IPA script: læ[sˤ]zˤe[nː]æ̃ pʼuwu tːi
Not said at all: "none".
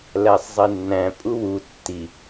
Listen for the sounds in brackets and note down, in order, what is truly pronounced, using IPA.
sˤ, nː

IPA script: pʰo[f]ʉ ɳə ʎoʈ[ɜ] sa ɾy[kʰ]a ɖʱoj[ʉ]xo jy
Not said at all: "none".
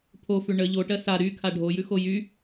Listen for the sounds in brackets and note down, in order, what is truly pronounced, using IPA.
f, ɜ, kʰ, ʉ

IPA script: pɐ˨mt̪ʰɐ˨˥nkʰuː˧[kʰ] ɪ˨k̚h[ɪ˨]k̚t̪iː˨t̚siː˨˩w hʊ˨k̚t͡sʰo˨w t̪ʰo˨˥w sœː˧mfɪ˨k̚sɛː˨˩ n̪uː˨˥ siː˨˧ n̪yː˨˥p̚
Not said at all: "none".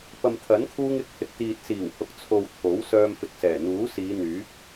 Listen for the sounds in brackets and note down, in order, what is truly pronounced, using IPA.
ŋ, ɪ˨

